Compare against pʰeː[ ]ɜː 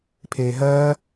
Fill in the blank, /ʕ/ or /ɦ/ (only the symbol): ɦ